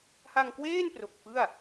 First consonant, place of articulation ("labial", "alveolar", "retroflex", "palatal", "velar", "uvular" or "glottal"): glottal